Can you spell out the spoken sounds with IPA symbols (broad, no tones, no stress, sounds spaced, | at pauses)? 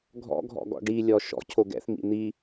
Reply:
ɡʱ ɔ̰ ɡʱ ɔ̰ ɡ ɔ̰ ɖ i lʲ ɔ ʃ ɔ̰ cʰ o ɡ ɛ̰ θ m ḭ n̪ i